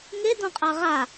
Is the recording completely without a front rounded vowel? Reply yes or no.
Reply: yes